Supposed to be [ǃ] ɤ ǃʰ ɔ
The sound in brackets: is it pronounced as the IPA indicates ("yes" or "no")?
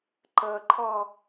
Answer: yes